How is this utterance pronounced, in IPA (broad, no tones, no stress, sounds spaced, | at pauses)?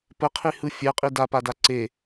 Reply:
p ə qʰ i h ɯ fʲ ɛ qʼ i d a p a d a ǀ e